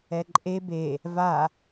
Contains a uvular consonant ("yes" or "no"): no